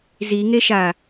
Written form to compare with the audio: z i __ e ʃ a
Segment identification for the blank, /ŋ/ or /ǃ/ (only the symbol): ŋ